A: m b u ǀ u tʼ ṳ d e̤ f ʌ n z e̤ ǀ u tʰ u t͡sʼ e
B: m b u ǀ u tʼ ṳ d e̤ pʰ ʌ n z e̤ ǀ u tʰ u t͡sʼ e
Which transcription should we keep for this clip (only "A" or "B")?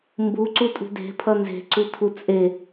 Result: B